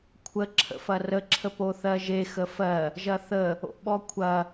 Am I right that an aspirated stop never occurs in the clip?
no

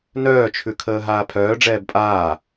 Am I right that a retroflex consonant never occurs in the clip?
no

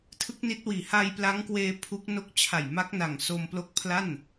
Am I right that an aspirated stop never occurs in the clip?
no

